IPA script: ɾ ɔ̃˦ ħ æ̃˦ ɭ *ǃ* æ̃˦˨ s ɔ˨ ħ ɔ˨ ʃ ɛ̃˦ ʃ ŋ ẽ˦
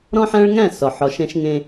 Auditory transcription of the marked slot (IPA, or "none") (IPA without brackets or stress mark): ŋ